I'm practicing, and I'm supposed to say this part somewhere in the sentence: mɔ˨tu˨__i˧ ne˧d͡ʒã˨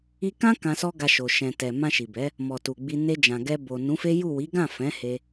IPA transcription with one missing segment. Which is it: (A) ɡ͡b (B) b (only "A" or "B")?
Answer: A